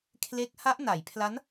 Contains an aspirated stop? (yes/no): yes